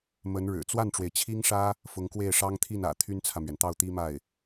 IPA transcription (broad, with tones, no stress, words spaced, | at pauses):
mə˧˥nɻɻ̩˨˩ t͡swa˥˩nʈ͡ʂwe˩ɪ̯t͡ɕʰi˥ŋʂä˥ | fʊ˧˥ŋkwe˥˩ɪ̯ʂɑ˥ŋ t̪ʰi˥˩nä̰˨˩ t̪ʰy˥nt͡sʰä˨mɥɛ˩nt̪ɑ˥˩ʊ̯ t̪i˥ma˥˩ɪ̯